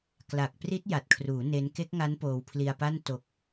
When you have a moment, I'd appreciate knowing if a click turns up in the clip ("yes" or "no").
no